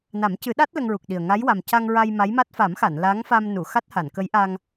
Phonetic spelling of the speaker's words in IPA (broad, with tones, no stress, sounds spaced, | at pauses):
n a˨˩˦ m c ɨ˨˩˦ ɗ a˦˥ t̚ l ə˧ ŋ ɹ u˨˩ k̚ ɗ i˨˩ ə̯ ŋ a˧˥ j w a˨˩ m c a˧ ŋ ɹ a˧ j m a˧˥ j m a˦˥ t̚ f a˨˩˦ m x a˨˩˨ n l a˧˥ ŋ f a˧ m n u˨˩˨ x a˦˥ t̚ h a˨˩˨ n k ə˧˥ j ʔ a˧ ŋ